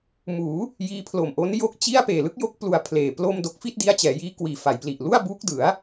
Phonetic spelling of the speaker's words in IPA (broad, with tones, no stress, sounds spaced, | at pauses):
m uː˩˦ | j iː˦˥ pʰ l o˨˩ m ʔ o˦˥ n j o˥˩ k̚ t͡ɕ i˥˩ a̯ p eː˨˩ l ɯ˦˥ k̚ j o˦˥ k̚ p l u˧ a̯ pʰ l eː˨˩ p l o˥˩ m d o˦˥ k̚ f i˥˩ t̚ d i˦˥ a̯ t͡ɕ ɛː˩˦ j iː˦˥ k w iː˨˩ f a˩˦ j p l i˨˩ ʔ l u˥˩ a̯ b uː˦˥ k̚ d ɯ˩˦ a̯